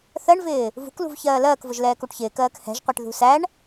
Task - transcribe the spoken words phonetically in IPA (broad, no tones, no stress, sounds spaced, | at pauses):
θ ɜ ɳ v ɪː | v ṳ k l ṳ v ç ɜː l ɜː k v ʊ ʒ l ɛː k u ʈ ç ɪː k ɜː k h ɛ̤ ʒ qʷ ɛ ʈ ð ṳ s æ ɳ